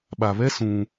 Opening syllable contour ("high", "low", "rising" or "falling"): low